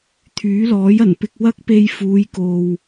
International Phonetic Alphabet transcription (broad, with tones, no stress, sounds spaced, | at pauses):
t̪ʰ yː˨˥ l ɔː˨˥ j ɐ˨˩ n p ɪ˧ k̚ w ɐ˥ k̚ p e˧ j f uː˨˧ j k o˨ w